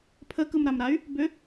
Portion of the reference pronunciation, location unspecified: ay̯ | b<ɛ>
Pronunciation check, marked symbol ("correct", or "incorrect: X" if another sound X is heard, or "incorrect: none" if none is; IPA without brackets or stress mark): incorrect: ʏ